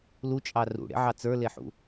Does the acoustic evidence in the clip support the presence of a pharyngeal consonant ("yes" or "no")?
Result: yes